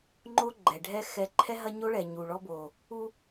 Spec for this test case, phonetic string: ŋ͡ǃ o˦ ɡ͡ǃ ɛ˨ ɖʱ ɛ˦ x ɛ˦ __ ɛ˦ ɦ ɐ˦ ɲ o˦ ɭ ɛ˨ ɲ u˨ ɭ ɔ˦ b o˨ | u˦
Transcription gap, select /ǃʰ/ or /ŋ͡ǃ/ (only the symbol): ǃʰ